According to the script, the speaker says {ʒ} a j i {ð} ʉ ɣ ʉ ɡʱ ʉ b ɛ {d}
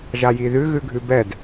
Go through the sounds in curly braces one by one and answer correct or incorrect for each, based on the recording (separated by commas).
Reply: correct, correct, correct